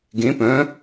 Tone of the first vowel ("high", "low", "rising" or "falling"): rising